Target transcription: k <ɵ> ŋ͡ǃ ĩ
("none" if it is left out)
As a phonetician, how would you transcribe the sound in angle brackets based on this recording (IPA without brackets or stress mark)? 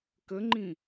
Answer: ə